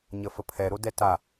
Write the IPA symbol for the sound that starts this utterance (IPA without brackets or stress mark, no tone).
ɲ